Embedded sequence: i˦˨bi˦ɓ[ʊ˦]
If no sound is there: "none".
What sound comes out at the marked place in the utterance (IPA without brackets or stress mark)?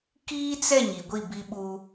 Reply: u˦